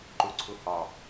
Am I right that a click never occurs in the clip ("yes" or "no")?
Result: no